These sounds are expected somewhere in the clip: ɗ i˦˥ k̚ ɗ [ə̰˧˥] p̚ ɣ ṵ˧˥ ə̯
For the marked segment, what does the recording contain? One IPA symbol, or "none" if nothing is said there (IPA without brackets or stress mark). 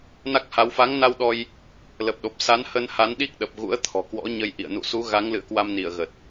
ə˨˩